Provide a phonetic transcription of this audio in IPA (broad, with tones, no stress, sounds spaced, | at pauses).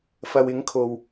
f ɐ˨ w ɪ˨˥ ŋ kʰ o˨ w